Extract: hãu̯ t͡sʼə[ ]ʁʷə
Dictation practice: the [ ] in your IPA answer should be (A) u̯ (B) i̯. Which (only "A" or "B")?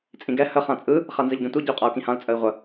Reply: B